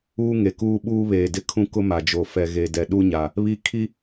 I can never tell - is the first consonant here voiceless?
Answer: no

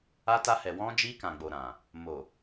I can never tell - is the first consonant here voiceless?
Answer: yes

